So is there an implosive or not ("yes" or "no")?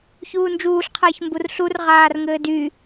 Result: no